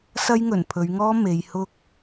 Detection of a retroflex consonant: absent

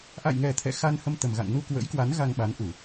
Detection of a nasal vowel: absent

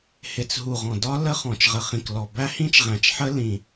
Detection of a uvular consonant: present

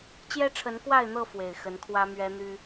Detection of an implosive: absent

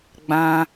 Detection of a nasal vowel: present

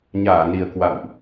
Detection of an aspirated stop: absent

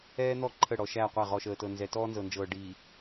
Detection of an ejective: absent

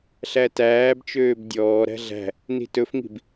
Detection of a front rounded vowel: present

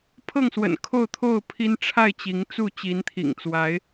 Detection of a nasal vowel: absent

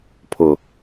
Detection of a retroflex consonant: absent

